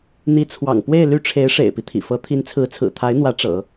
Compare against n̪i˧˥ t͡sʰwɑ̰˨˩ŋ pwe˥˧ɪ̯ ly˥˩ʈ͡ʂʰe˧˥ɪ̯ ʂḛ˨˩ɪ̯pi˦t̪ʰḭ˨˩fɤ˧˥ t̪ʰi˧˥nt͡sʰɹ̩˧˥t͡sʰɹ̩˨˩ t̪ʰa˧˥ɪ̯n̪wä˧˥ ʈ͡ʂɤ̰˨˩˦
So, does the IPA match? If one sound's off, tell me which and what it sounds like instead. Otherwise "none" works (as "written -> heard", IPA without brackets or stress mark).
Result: none